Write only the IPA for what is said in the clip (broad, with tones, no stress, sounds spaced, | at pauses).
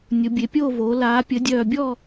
nʲ ʊ˩˧ bʲ e˩˧ pʲ oː˦˨ v oː˩˧ l aː˩˧ pʲ ə˩˧ dʲ œː˨˩ bʲ ɔ˦˨